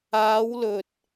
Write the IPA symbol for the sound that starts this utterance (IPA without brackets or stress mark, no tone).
aː